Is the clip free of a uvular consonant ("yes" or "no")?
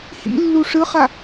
no